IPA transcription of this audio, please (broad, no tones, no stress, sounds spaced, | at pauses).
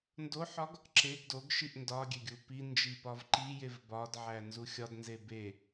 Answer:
n d o ħ ɒ ɡ | ǁ e ɡ d o ɡ ʃ i ʔ n d ɒ ɡʲ e ɡʲ u p i n d͡ʒ i p ɒ v ǃ i j e v b ɒ d ʕ æ n z u xʲ ɒ d n z e b e